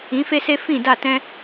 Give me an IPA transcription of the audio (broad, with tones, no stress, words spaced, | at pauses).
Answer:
ĩ˨˦fe˦se˦ fĩ˦˨da˦˨tɛ̃˦